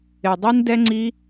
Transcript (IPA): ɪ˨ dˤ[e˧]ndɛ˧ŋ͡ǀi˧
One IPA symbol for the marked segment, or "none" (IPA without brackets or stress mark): i˧